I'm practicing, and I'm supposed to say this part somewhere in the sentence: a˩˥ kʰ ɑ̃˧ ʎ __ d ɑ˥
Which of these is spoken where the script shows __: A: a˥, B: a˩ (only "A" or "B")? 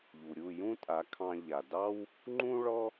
B